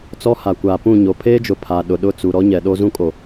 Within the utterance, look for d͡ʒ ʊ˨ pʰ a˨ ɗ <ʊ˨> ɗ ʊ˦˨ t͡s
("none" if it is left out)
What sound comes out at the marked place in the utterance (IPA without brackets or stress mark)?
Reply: ʊ˨